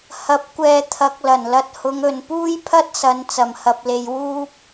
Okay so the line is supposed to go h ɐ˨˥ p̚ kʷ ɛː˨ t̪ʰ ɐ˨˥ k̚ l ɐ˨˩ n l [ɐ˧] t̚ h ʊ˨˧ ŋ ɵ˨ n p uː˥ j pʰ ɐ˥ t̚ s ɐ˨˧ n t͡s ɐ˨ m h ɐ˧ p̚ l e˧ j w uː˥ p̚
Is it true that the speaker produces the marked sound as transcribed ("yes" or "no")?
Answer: yes